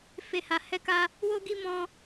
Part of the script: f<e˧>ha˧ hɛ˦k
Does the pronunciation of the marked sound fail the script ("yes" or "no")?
no